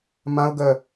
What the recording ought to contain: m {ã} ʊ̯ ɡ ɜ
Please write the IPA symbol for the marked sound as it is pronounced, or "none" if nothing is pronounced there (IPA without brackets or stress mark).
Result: ã